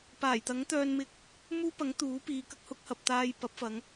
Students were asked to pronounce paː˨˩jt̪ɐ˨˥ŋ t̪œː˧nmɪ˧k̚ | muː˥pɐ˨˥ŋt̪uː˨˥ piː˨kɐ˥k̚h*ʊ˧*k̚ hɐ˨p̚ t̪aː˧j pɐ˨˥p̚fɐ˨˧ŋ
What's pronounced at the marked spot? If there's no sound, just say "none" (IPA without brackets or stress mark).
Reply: ʊ˨˥